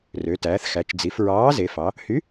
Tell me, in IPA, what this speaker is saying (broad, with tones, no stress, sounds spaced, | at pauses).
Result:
r ø˩˧ t æː˩˧ θ x æ˩˧ t͡ʃ d͡z i˩˧ f ɹ ɑː˨˥ z e˩˧ f ɑ˩˧ | h y˨˥